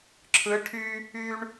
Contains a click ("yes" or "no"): yes